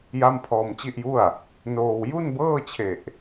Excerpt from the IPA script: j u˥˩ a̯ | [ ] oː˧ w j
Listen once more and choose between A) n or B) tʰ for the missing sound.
A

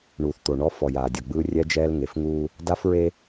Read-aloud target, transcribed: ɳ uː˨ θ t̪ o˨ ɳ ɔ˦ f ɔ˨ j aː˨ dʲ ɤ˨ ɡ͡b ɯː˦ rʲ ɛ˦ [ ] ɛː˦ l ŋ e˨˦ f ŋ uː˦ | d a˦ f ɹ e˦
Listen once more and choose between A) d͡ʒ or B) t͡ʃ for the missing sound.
A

